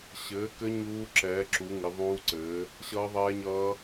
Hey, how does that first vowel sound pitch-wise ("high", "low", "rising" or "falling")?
rising